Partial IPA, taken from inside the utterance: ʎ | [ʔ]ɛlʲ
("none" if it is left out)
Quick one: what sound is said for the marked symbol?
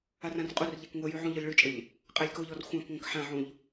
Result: qʼ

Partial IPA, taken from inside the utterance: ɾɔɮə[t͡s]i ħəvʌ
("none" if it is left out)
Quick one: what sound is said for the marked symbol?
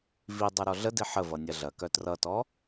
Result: d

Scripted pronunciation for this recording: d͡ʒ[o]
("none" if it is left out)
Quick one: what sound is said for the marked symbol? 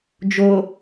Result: o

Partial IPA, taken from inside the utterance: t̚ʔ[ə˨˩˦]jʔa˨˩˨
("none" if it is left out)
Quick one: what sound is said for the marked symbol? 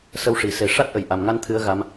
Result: ə˨˩˨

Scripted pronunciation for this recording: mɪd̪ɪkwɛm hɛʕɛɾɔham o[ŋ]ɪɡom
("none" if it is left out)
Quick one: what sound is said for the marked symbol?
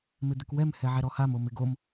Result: m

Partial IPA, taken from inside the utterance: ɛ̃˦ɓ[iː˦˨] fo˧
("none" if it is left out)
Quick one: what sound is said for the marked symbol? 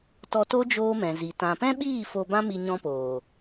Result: iː˦˨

